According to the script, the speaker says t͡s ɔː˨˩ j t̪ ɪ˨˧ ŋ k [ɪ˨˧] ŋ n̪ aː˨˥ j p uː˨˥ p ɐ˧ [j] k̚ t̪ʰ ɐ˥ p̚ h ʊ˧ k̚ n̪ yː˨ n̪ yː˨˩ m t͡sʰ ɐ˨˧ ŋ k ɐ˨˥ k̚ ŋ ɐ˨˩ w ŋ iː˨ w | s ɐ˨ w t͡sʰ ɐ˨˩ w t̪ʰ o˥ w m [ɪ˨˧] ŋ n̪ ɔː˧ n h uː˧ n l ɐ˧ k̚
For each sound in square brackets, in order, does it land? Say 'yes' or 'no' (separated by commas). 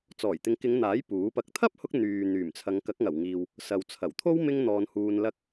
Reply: yes, no, no